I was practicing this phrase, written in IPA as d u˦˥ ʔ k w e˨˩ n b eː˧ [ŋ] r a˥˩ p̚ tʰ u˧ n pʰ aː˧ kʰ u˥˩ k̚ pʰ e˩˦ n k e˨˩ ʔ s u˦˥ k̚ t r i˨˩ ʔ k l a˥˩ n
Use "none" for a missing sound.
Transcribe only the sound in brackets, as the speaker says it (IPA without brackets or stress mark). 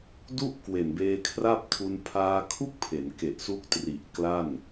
kʰ